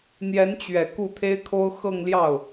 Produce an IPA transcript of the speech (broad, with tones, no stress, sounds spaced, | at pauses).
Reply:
n̪ j ɛ˧˥ n t͡ɕ ɥ ɛ˨˩ k u˥˩ t̪ʰ e˥ ɪ̯ kʰ o˥ ʊ̯ x ɤ˥˧ ŋ l j ɑ˥˩ ʊ̯